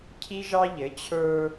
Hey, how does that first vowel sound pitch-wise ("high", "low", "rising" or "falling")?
high